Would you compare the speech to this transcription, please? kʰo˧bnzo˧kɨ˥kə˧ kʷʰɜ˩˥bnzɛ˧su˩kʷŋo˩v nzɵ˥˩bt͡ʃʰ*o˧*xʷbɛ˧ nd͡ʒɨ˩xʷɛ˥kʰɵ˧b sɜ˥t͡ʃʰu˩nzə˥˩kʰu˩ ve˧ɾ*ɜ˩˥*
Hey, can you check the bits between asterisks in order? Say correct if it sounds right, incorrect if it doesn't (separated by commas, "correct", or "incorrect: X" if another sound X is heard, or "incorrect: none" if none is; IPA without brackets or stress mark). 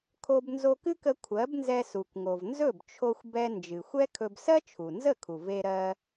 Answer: correct, incorrect: ɜ˧